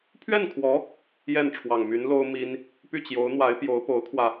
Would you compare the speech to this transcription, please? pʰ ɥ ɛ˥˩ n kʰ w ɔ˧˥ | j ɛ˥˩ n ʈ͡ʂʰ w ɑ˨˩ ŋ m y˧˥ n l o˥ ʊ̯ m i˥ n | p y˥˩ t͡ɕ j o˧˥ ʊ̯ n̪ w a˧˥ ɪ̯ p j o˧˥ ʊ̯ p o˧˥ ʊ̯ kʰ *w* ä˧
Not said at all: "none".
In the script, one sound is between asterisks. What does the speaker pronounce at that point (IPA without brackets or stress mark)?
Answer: w